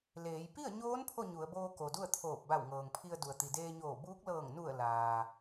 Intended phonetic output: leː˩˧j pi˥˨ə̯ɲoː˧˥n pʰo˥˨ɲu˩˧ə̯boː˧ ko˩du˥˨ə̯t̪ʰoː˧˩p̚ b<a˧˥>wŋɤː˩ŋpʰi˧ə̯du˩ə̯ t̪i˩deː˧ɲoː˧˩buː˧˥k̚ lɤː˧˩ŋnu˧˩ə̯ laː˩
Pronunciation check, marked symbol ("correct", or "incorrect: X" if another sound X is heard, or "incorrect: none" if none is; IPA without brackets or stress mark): incorrect: a˧˩